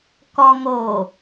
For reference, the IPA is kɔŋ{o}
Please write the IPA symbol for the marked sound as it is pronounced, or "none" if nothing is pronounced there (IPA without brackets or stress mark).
o